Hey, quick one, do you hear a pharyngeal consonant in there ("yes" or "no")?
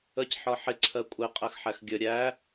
yes